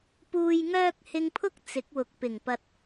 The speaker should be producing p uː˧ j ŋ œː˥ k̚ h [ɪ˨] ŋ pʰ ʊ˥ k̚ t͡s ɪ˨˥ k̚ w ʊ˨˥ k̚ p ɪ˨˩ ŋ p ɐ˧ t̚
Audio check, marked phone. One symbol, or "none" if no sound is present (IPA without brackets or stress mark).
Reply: ɪ˧